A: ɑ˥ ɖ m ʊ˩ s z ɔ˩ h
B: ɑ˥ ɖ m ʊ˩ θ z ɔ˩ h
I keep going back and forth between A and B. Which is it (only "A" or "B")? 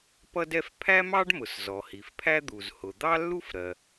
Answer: A